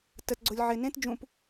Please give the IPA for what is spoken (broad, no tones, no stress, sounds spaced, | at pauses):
t ə t ɡ͡ǀ o lʲ ʕ ɪ n ẽ t d͡ʒ ũ p